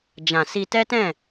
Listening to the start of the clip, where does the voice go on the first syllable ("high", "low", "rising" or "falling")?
low